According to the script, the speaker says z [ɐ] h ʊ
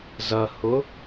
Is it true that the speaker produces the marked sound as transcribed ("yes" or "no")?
yes